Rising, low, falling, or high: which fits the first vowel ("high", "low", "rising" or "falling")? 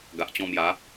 low